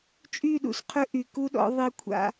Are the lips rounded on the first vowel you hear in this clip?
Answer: yes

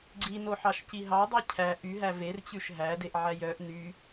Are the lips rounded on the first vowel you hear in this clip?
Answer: no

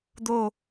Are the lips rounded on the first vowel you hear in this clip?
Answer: yes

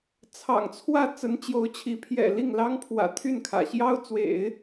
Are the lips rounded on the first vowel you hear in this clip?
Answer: no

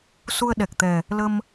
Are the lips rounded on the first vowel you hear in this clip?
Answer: yes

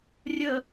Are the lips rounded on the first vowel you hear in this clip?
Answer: no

